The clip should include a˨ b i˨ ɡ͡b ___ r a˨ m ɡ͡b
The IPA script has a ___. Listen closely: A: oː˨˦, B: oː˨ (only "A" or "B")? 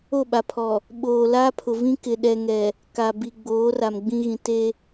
A